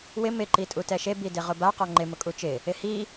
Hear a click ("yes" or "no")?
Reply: yes